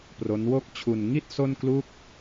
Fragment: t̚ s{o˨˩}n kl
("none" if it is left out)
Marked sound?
o˥˩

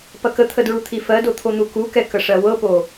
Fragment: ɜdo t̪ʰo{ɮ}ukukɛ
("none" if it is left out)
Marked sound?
n̪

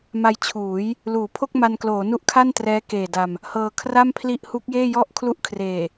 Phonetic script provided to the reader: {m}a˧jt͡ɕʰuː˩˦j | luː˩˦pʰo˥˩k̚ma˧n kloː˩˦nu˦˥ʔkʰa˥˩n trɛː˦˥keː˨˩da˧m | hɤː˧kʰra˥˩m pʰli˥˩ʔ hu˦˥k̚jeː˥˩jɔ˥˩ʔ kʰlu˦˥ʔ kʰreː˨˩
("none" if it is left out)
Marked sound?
m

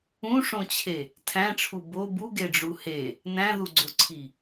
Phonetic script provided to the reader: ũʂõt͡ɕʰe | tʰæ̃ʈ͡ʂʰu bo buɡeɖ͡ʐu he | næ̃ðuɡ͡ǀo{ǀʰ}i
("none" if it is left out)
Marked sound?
ǀʰ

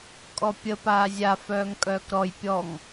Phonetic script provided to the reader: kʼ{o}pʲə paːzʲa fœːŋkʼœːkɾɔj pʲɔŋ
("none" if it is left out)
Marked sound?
ɔ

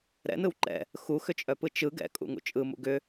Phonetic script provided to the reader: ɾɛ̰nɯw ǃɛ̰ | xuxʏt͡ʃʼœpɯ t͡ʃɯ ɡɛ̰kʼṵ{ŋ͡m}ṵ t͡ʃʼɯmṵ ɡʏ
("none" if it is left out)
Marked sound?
ŋ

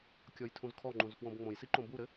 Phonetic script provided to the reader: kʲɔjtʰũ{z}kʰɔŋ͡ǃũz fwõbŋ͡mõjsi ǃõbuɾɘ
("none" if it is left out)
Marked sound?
z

